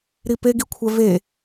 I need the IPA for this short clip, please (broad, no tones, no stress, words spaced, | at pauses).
ɾipeɡikʷʰɛ ve